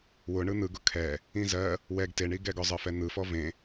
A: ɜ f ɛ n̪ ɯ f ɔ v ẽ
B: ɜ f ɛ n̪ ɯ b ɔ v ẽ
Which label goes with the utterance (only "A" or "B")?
A